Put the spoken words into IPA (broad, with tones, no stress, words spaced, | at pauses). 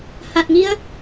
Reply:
ha˨˩t̚ŋi˧ə̯